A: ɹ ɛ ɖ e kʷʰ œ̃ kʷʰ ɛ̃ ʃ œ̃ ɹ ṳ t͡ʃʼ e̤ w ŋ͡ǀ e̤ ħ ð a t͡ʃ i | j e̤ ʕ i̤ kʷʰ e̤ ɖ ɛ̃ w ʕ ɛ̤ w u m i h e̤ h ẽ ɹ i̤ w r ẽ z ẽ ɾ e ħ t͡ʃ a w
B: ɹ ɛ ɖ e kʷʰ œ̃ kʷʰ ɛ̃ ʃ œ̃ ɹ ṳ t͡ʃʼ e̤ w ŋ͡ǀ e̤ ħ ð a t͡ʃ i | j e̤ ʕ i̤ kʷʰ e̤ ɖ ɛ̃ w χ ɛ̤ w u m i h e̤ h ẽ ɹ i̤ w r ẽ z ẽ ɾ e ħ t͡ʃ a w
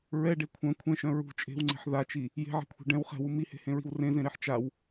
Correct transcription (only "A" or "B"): B